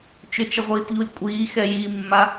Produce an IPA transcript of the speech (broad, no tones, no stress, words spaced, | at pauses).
t͡ʃʏt͡ʃəʁʷiːtʎulʲ kʷʼiːxɛ jimːa